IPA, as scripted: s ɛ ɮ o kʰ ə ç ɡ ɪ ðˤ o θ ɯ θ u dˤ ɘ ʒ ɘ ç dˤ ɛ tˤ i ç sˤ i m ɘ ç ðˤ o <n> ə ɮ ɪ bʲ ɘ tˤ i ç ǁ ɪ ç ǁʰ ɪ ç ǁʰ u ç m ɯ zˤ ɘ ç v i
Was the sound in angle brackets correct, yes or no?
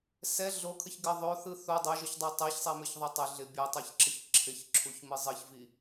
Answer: no